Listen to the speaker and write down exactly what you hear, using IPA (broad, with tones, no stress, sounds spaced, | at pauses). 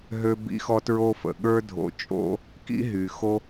ɦ ø˦ b ḭ˦ x ɔ˦ t ɹ o˦ f ə̰˩ ɠ ə˞˦ dʱ o̰˨ t͡ʃʼ o̰˦ | k ḭ˥ ɦ y˩ x o˦